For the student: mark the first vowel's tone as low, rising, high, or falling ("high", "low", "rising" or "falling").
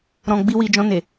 low